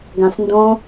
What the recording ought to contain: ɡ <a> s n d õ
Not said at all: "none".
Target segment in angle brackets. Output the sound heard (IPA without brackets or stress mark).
ã